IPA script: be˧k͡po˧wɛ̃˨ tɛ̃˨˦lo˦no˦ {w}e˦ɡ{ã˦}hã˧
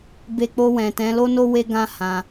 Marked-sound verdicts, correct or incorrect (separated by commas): correct, correct